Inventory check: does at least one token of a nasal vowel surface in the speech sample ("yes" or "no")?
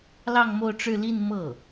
no